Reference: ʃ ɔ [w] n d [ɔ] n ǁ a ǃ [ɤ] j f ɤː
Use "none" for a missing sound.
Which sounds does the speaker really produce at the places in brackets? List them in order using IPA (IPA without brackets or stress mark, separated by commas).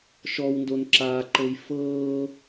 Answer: w, o, ɤ